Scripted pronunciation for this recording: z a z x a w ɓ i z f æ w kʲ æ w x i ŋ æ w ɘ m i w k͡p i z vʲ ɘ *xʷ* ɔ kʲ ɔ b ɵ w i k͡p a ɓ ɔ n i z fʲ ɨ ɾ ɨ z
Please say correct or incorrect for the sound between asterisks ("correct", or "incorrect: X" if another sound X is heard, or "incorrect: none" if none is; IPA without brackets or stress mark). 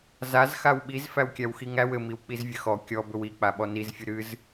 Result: incorrect: x